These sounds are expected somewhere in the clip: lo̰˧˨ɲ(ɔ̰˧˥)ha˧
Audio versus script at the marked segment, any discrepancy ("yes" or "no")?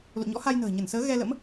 no